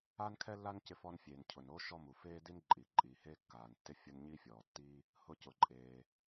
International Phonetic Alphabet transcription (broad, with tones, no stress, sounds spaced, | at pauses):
aː˥ n kʰ ɛ˥ lː a˥ n c ɪ˥ f ɔ˥ n fʲ eː˩ n cʰ ʊ˩ n o˥ ʃ ɔ˥ m u˩ f eː˥ d i˥ n ǃʼ iː˩ ǃʼ iː˩ h eː˥ kː aː˩ n tː ɪ˥ fʲ ʊ˥ n ɲ iː˥ fʲ ɔː˩ tː iː˥ | h ʊ˥ c ʊ˩ ǃʼ eː˩